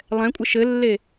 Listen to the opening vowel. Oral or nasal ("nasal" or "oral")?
nasal